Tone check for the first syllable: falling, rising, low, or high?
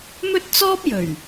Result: high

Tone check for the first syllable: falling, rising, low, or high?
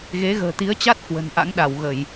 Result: rising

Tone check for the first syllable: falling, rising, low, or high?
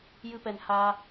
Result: high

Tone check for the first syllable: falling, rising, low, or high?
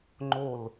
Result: falling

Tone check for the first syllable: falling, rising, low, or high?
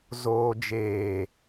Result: low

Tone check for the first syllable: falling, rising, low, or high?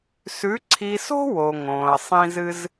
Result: rising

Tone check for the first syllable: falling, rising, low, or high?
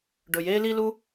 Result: low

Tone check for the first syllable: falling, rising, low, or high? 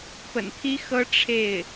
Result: low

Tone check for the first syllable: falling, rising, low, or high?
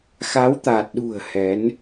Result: rising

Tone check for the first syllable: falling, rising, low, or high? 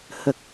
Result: low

